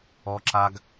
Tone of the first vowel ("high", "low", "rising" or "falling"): high